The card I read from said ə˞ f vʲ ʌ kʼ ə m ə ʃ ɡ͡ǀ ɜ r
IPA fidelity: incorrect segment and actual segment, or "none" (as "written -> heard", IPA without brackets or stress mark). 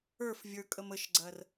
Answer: ʌ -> ə˞